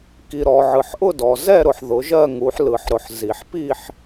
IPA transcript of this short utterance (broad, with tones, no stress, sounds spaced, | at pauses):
k i˨ ɾ ɔ˨ ʕ ɯ˨ ħ ʔ ʊ˥˧ d ɔ˨ z ɛ˥˧ ɾ ʊ˨ ħ ð ʊ˨˦ ʒ ɜ˥˧ ŋ u˨˦ ħ l ɯ˨ ħ ɾ ʊ˨ ħ z i˨ ħ p i˥˧ ħ